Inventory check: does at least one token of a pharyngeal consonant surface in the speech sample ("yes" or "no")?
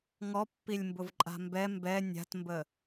no